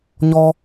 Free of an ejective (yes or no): yes